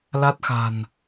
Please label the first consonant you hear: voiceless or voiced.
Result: voiced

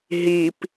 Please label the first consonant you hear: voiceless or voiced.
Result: voiced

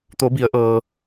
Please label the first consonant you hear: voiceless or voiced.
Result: voiceless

